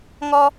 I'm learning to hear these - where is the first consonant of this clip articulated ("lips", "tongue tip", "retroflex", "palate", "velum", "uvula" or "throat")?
velum